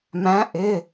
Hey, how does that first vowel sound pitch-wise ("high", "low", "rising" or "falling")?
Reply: rising